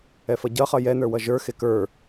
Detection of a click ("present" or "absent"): absent